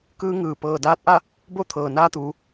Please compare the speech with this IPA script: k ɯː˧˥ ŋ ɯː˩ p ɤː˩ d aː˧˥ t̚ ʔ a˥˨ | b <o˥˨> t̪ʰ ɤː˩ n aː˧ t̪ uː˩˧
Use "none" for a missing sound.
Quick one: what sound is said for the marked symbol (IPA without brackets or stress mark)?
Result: o˥˨